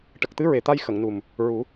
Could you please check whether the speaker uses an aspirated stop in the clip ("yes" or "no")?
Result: no